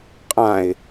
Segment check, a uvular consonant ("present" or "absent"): present